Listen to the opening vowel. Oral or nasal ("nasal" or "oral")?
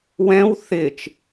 nasal